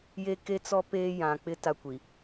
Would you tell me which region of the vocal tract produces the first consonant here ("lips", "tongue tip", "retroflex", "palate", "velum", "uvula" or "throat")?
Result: palate